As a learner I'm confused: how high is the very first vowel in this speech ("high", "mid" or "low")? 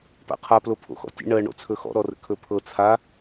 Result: low